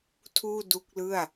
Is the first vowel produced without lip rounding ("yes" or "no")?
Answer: no